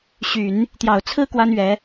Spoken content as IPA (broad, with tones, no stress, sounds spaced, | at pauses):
ɕ y˨˩˦ n | t̪ j ɑ˨˩ ʊ̯ t͡sʰ ɹ̩˥ k w a˥ n ɥ ɛ˧˥